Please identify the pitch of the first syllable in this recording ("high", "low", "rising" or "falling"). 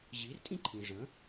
rising